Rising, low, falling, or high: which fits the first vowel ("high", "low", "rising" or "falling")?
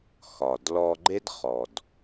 low